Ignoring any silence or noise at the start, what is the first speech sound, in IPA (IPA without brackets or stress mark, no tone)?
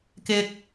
k